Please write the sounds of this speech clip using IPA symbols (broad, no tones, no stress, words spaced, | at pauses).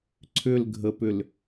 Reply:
ǀʰʏlɡʱəpʏl